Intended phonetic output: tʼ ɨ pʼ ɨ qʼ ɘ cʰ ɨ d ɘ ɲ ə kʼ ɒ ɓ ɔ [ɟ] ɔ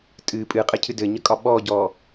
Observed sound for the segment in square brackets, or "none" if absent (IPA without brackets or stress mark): ɟ